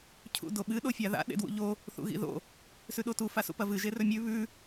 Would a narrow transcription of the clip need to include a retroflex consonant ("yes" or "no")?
no